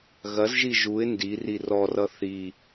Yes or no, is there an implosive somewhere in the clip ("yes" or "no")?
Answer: no